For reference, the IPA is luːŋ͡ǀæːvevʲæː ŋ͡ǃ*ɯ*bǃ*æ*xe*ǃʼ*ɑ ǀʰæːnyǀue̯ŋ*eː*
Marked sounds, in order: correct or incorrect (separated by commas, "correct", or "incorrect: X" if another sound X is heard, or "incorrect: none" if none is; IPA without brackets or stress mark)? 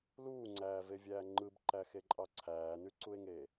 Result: correct, correct, correct, correct